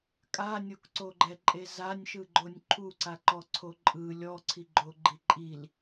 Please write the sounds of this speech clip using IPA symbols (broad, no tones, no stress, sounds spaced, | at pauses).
kʼ a nʲ o k ǀ o ɡ͡ǃ ɛ ǃʼ e z a nʲ ʃ ɯ ɡ͡ǃ o nʲ ǃʰ u ǀ a ǃ ɔ ǀʰ o ǃʼ ɯ lʲ ɔ ǀʰ i ɡ͡ǃ o ɡ͡ǃ i ǃʼ i l